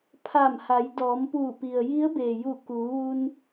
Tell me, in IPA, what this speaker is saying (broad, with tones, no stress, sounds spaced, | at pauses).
pʰ a˧˩ m h a˩˧ j d ɔː˩˧ m p uː˧˩ p i˩ ə̯ j i˧˥ ə̯ b eː˩ j u˧˩ k uː˩˧ ʋ u˧ n